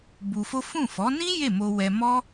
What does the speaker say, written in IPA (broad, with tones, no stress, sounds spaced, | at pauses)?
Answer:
b u˧ f o˦ f ũ˦˨ f ɔ˨˦ n ĩ˦ j e˦˨ m o˧ w ɛ˧ m ɔ˦